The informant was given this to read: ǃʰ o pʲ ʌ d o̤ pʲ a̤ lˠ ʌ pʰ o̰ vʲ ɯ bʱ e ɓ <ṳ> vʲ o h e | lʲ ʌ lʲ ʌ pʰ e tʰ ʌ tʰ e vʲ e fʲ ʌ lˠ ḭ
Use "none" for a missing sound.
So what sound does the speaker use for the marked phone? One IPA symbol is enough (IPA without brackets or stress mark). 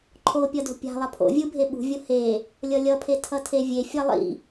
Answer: ṳ